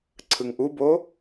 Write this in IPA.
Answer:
ǀʰ ɯ ŋ ʔ u b o

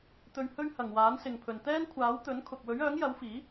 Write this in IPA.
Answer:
t̪ ɵ˧ ɥ h ɵ˥ ɥ h ɐ˨ ŋ w aː˨˥ n s ɪ˨ ŋ pʰ ɵ˨ n t̪ ɛː˥ n kʷʰ aː˨˥ w t̪ ɵ˨˥ n kʰ ʊ˨ k̚ w ɵ˨˥ ɥ œː˨˥ ŋ j ɐ˨˥ w f iː˨˥

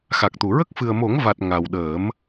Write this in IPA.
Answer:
x a˨˩ k̚ t̪ u˨˩˨ ɹ ə˦˥ k̚ f ɨ˨˩ ə̯ m o˨˩˦ ŋ v a˨˩ t̚ ŋ a˨˩ w ɗ əː˨˩˦ m

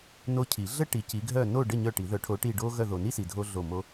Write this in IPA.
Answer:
n o˦˨ cʰ i˨˩˦ ɮ ə˥ ʈ i˨ c i˨˦ ɡʱ œ˦˨ n o˦˨ ɖ ə˦˨ ɲ œ˦˨ ʈ i˨˩˦ ð œ˨˩˦ ʈʰ o˨˦ ʈ i˦˨ ɖ o˥ ɣ œ˦˨ ð o˨ n i˥ s i˨ dʱ o˥ ɮ o˦˨ m o˥

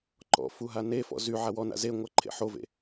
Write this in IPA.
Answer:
ǃ ɔ̰ f u ɦ a n e f ɔ̰ z y ʕ a w ɔ n a̰ z e ŋʷ a ǃʰ ḛ ħ o v ḛ

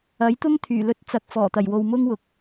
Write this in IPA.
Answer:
ɐ˨˥ j t̪ ʊ˥ ŋ t̪ʰ yː˨˩ l ɵ˧ t̚ t͡s ɐ˨ k̚ f ɔː˨˩ t̪ ɐ˨˩ j w o˨ w m ʊ˥ ŋ w ʊ˨ k̚

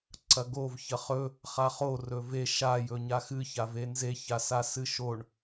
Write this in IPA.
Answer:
ǀ ɐ ɡ o v ç ɐ χ ɵ | χ a χ o r ɵ v e ʃ a j ɵ ɲ a x ɨ ç a v e n z e ç a s a s ɨ ʃ o ɳ

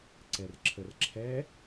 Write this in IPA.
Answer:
ǀ ɛ r ǁʰ ə r ǁʰ ɛ

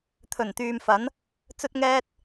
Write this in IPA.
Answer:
t̪ʰ ɵ˨˩ n t̪ yː˨ m f ɐ˨˥ n | t͡s ɵ˥ t̚ ŋ ɛː˥ t̚

